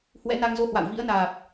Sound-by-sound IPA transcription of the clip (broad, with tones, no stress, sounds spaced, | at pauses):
h w ɛ̰˧˥ n a˧ ŋ z o˧ h w a̰˧˨ w v ḭ˧˥ ə̯ n aː˨˩ p̚